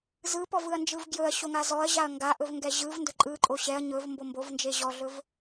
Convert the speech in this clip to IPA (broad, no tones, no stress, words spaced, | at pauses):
zɯpɔvɯɐ̯nd͡ʒɯv ɡjɵɐ̯ɕoŋa zɔɐ̯ʑaɐ̯ ŋɡaʔɵvŋɡɛ ʑɯvndɵ ǃʼɯǃʼo ɕɛɐ̯ ɲɵvmbo mbovnd͡ʒe ʑɔɮɵv